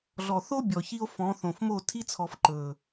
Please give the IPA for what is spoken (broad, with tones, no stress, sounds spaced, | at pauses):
ɮ ɔ˨ θ o˦ bʲ ɔ˨ ç i˦ o̯ f ɔ̃˨˦ θ õ˨ f m o˦˨ tʰ i˦ t͡sʰ ɔ˨ f ǃ ɵ˨